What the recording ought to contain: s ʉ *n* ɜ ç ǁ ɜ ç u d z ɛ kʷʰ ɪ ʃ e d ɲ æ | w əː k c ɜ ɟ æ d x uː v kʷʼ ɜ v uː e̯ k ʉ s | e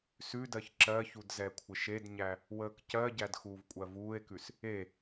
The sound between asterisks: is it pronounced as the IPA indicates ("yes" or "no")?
no